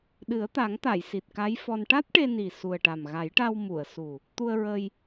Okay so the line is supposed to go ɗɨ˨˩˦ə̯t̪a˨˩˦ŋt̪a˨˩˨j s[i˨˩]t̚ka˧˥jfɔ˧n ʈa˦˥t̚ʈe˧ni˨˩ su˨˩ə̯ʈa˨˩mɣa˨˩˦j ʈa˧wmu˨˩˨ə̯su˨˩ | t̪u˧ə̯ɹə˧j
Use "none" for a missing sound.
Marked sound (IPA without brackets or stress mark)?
i˨˩